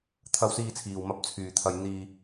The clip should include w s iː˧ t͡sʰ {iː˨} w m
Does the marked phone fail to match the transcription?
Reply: no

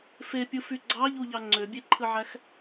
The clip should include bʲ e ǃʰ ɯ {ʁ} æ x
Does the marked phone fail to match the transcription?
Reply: yes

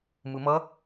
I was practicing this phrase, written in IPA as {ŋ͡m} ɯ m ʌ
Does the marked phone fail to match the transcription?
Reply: yes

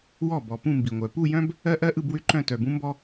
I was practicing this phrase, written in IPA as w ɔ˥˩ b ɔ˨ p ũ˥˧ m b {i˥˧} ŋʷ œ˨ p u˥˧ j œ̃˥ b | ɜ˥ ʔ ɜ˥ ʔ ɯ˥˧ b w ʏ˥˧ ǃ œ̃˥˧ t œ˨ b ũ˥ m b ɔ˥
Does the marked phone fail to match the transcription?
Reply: yes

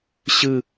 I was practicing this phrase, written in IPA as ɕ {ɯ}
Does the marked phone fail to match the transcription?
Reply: no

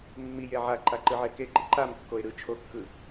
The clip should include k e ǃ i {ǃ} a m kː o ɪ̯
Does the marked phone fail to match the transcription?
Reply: no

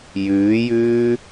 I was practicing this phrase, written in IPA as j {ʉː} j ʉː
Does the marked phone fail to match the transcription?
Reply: no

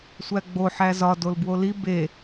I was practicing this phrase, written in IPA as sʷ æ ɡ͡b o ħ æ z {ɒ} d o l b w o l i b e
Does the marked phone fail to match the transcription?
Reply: no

